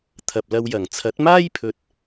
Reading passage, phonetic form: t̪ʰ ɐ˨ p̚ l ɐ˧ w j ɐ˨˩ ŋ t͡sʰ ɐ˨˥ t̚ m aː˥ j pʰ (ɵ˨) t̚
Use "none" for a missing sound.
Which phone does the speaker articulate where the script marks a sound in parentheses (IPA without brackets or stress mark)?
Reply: ɵ˨